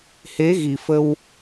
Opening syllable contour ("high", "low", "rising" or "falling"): rising